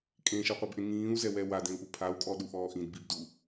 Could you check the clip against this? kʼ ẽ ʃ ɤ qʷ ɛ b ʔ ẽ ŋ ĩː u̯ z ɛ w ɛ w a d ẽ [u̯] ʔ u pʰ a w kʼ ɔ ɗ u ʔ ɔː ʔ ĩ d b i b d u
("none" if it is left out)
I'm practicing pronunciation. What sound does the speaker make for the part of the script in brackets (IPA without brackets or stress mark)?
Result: u̯